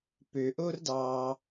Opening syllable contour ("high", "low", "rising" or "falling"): low